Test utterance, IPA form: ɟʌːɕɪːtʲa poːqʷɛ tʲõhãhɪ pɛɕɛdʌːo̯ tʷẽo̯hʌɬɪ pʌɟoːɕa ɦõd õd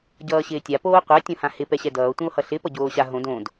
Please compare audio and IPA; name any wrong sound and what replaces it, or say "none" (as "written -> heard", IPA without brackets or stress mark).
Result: none